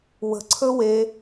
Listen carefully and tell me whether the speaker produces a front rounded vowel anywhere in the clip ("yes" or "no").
no